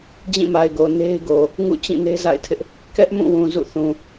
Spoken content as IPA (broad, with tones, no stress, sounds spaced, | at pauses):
d͡ʑ ĩ˦˨ m a˨ ɪ̯ ɡ o˨ n e˦ ɪ̯ ɡ o˨ | ŋ ṵ˦˨ t͡ɕ ĩ˦˨ n e˦ z a̰˦˨ ɪ̯ tʰ ɪ˦ ʔ | k ɛ˦ ʔ m ũ˦˨ w ũ˨ z ṵ˦˨ θ ũ˨